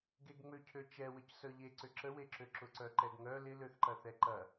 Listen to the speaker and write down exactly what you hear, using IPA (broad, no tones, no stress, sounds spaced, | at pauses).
ɡ e ɡ ŋ͡m ø cʰ ø t͡ʃ ɛ w ə c s œ ʎ e ǀ ʏ ǁ ə w e ǁ ø ǁ ʊ ǀ œ ǃ ɛ ɡ ŋ œ l ɪ l ø θ ǃ ɐ θ ɛ ǃ ɐ